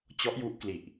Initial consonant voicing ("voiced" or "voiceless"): voiceless